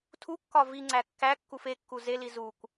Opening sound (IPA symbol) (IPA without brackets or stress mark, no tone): tʰ